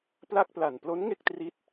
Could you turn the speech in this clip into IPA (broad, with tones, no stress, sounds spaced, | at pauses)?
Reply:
p l a˥˩ k̚ p l a˨˩ n p l o˦˥ n ŋ e˥˩ k̚ t r i˦˥ t̚